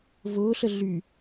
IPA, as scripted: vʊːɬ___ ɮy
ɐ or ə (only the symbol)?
ə